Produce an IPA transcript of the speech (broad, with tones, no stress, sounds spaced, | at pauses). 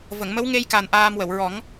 v ə˨˩˨ ŋ m ə˧˥ w ŋ e˧ j k a˨˩ n ʔ aː˧ m w ə˨˩˨ w ɹ ɔ˨˩˦ ŋ